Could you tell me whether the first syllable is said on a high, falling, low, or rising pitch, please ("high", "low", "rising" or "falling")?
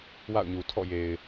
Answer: falling